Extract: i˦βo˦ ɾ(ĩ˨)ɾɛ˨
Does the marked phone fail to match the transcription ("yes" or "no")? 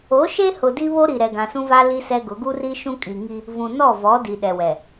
yes